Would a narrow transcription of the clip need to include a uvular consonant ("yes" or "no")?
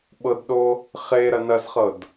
yes